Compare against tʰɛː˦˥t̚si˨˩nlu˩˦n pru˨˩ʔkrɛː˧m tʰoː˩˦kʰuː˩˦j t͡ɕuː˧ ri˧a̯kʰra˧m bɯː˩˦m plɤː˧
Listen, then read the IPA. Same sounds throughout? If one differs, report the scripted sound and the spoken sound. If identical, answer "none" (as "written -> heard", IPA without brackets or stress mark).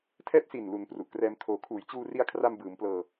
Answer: none